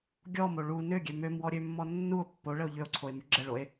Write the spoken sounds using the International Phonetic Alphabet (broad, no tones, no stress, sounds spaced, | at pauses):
ɡʲ ɔ m o ɭ u n ø ɡʲ ø m ø m w ɔ ɾʲ ø mː ɔ nː u o̯ pː o ɭ ə o̯ ʎ ø o̯ ǀʰ o e̯ m y ɡ͡ǁ ə ɭ o e̯